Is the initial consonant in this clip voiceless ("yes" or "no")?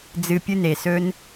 no